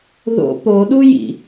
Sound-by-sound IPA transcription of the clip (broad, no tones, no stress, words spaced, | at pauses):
ðo̰ poɗujḭ